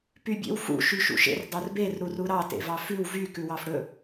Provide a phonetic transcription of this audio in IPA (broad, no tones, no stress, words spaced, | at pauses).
pybʲḛwfṵ ʃyʃṵʃḛr dˤœrber ɾuruɾɑ tḛvɑfʉw vy kʉwɑfɽɵ